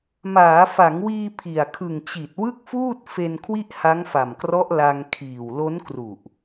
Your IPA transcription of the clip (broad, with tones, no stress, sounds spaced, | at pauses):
m aː˩˦ f a˩˦ ŋ w iː˧ pʰ i˨˩ a̯ kʰ ɯ˨˩ ŋ t͡ɕ i˨˩ t̚ w ɯ˥˩ k̚ f uː˥˩ t̚ f e˧ n kʰ w i˥˩ ʔ h a˦˥ ŋ f a˨˩ m k r ɔ˦˥ ʔ l a˧ ŋ kʰ iː˨˩ w l o˦˥ n k r u˨˩ ʔ